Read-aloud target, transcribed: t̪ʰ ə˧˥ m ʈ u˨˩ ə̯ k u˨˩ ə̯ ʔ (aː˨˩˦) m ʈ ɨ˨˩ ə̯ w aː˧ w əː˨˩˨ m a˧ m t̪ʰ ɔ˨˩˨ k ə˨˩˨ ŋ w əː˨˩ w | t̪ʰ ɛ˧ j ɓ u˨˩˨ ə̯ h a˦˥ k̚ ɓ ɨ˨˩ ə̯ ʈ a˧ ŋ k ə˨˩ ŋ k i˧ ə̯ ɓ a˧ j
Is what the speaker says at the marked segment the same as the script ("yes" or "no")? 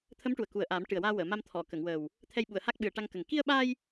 yes